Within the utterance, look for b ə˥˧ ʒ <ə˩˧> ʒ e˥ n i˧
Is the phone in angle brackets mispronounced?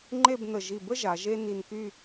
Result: yes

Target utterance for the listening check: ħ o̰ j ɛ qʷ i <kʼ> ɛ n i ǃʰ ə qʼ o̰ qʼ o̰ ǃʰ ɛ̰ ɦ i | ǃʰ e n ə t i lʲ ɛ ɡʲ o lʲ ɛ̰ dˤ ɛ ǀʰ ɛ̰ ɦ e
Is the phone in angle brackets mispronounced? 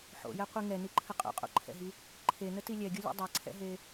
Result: yes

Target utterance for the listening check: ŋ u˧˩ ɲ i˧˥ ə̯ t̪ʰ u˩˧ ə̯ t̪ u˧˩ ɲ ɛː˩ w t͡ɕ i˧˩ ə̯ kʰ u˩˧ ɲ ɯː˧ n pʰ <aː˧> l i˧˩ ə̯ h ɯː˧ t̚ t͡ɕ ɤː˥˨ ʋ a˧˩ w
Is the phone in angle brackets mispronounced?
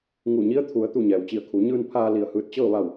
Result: no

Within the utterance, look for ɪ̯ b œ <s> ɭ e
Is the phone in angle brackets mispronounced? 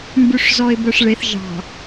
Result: yes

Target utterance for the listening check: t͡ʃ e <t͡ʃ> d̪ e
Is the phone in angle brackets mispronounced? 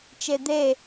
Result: yes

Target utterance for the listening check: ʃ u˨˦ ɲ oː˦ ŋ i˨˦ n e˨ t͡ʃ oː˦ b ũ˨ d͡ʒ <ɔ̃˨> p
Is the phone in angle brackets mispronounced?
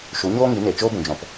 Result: no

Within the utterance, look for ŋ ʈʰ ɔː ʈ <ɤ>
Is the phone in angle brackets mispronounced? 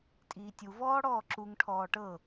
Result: no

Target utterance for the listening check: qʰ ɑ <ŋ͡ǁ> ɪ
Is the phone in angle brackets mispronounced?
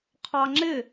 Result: no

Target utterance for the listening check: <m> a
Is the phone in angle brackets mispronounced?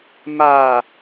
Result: no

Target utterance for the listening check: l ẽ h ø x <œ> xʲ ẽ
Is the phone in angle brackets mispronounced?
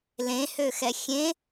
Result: yes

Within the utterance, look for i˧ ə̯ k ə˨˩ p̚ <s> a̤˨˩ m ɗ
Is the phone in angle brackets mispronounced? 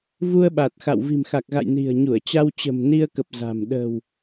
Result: yes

